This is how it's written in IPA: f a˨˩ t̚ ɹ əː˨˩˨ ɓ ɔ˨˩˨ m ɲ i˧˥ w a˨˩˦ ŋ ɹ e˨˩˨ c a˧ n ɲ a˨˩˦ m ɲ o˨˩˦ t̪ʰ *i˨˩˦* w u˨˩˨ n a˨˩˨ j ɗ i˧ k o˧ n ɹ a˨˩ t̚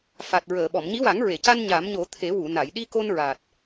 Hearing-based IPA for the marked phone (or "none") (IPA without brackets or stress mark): e˨˩˦